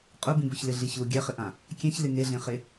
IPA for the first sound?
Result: qʼ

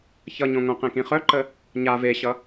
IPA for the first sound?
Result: ç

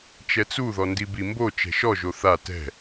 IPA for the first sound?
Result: t͡ʃ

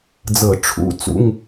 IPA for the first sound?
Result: d͡z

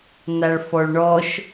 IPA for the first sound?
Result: n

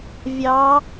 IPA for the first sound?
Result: vʲ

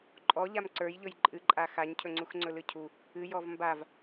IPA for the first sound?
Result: ǃʼ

